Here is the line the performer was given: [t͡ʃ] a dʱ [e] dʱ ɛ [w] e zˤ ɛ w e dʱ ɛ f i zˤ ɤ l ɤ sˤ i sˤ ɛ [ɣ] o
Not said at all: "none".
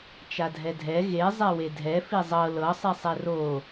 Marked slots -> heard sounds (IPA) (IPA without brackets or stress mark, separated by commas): t͡ʃ, ɛ, ɣ, r